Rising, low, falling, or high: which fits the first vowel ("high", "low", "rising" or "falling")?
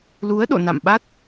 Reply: rising